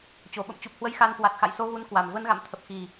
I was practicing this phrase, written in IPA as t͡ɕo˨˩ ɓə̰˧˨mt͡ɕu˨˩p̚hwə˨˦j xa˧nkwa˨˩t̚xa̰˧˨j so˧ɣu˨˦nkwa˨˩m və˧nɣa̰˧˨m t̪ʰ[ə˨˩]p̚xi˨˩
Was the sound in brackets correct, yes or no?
yes